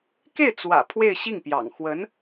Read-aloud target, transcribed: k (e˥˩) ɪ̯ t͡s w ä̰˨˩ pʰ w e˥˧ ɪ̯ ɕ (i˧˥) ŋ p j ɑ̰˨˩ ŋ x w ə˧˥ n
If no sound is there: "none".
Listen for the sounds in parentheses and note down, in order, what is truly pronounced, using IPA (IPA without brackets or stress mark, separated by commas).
e˥˩, i˥˩